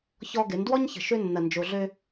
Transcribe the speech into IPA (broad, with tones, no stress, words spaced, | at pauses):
çɔ˦ɡɪ˨˦n dwɔ˦ɲçə̤˨ ʃø˦nːɐ˨nd͡ʒo˨ɮø˦